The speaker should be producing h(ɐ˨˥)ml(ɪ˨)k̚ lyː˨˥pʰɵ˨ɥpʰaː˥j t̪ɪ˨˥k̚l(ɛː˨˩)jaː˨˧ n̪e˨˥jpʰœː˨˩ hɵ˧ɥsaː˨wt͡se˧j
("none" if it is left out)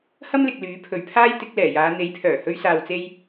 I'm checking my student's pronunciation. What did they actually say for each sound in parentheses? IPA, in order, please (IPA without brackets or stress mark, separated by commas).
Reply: ɐ˥, ɪ˨, ɛː˨˩